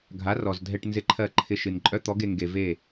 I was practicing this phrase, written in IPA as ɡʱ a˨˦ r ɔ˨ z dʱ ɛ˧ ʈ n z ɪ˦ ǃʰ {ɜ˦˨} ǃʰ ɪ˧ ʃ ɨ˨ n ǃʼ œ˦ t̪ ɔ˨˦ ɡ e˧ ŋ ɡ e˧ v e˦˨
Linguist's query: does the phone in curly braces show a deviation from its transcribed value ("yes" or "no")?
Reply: no